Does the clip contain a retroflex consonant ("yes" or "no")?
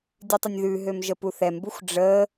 yes